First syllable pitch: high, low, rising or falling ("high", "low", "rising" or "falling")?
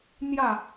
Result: falling